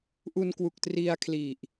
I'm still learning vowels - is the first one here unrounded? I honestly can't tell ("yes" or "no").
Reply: no